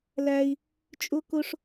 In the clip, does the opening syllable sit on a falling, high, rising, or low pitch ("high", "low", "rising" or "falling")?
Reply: high